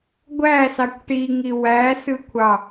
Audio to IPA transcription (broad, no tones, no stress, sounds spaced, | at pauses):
ɡʷ æ s ɑ kʷ ʈ i ŋ i w æ s ɯ kʷʰ ɑ